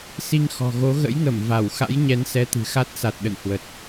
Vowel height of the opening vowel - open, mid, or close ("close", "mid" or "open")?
close